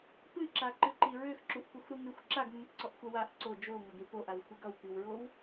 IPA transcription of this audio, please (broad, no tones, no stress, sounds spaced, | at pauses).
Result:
p ɨ ǁ a ǃ ɨ ǃ i ɹ ø x ǁ u ʔ p u x ɾ u ŋ ʉ xʷ ǁ a ɡ mː ɨ ǀ ɔ ʔ xʷ a w a ʔ ǀ o d͡ʒ o ŋ ʌ ɡ ɾ i p o ʔ a w xʷ e ɡ ʌ w p i w ɹ o w